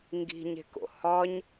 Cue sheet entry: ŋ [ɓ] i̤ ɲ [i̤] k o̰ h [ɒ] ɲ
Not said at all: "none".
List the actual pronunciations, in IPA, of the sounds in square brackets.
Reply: ɡ, e̤, ɒ

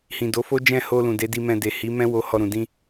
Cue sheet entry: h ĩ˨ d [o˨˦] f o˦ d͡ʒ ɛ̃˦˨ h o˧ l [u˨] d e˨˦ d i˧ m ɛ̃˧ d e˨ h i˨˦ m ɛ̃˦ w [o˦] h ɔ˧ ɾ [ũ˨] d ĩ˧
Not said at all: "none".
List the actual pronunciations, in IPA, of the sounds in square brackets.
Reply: o˨˦, ũ˨, o˧, ũ˨

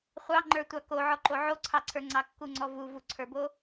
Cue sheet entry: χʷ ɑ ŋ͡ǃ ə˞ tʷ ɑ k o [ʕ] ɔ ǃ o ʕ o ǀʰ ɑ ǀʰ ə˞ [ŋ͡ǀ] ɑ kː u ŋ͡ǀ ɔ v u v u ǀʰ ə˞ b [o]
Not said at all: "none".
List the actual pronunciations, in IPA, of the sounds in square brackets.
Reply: ʕ, ŋ͡ǀ, o

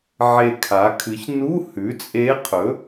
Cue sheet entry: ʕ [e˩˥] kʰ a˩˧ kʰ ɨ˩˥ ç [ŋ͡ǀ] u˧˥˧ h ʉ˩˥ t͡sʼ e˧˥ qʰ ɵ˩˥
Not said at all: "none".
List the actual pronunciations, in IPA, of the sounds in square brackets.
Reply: e˨˩, n

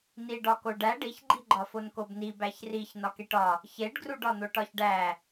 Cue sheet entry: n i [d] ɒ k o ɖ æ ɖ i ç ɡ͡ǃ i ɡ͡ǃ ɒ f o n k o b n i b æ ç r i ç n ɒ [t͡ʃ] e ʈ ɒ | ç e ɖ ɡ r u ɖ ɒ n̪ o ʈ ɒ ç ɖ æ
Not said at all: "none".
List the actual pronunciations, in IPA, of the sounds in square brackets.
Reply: ɖ, k

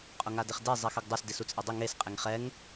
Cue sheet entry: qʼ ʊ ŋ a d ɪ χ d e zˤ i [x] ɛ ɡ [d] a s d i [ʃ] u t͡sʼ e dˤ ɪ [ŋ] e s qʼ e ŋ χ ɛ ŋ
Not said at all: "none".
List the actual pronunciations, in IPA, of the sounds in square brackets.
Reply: x, dˤ, s, ŋ

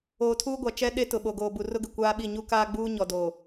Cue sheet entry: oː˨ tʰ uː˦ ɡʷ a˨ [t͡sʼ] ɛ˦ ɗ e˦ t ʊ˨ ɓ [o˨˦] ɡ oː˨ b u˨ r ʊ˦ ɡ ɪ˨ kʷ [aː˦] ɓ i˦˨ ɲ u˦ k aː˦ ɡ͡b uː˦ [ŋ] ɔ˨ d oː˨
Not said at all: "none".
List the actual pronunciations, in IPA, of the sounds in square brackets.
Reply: t͡ʃ, o˨, aː˦, ɲ

